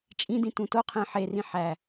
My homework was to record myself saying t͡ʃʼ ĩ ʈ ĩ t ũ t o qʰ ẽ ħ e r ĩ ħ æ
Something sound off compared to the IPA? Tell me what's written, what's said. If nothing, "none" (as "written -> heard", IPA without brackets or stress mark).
ʈ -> d